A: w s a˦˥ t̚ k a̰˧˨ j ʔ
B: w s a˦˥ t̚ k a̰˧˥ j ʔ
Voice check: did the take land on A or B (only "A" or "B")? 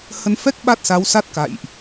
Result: A